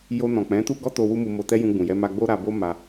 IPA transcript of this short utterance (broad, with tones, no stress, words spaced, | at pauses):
jo˧nɔ̃˨k͡pɛ̃˨˦tu˦ ɡɔ˦to˧ wu˦mu˧mo˧tɛ˦ jũ˧ɡ͡bũ˨jɛ˧ ma˧ɡ͡bo˦ɾa˧ bo˦ ma˧